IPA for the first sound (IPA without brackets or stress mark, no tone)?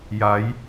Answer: j